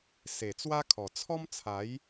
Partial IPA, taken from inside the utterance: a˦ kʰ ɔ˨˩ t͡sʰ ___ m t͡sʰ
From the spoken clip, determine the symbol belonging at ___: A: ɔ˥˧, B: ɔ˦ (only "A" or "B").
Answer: B